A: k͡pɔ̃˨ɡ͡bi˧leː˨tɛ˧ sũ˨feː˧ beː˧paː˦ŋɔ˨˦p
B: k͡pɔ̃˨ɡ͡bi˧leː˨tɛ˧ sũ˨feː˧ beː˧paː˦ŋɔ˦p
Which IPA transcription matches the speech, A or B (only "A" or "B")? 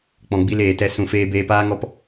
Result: B